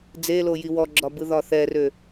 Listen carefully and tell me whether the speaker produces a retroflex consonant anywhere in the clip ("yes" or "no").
no